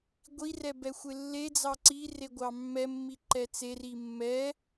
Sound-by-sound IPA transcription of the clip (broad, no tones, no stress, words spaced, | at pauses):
ɡʷirɛ bɛxʷelːed͡zɑ ǀire ɡʷɑmːɛmːi ǃɛt͡seri mːɛ